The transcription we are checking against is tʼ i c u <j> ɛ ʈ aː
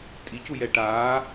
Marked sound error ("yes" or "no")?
no